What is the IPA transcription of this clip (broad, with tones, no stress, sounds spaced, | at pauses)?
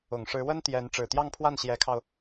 ʊ˨˩ ŋ ʂ ɻ̩˧˥ w ə˥ n t̪ j ɛ˧˥ n ʈ͡ʂ ɻ̩˨˩ t̪ j ɑ˥˧ ŋ pʰ w a˥˩ n ɕ j ɛ˧˥ kʰ ɑ˧ ʊ̯